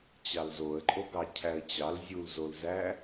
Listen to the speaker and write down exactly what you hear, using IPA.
t͡ɕɑlzoə̯ǃʼoɡɑ cʰæə̯t͡ɕɑl zʲulzolzæ

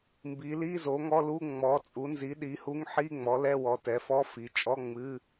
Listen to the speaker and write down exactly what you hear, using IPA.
mbi˩˥ li˧˥˧zo˩˥ŋɔ˧˥˧lu˧˥˧ ŋ͡mɔ˩˥t͡sʼu˩˥nzi˩˥ ɗi˩˥hu˧˥˧ŋ ħi˧˥˧ ŋ͡mɔ˩˥lɛ˧˥˧wɔ˩˥ tɛ˩˥fɔ˧˥˧fi˩˥ t͡ʃʼɔ˧˥˧ ŋ͡mɨ˧˥˧

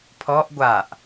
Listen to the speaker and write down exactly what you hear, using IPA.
pʰɔʔ ɡʷaʔ

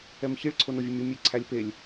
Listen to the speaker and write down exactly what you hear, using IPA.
ɛmçiɭ ǀʰonovʲemʲɔ mʲe ǀʰælʲpelʲ

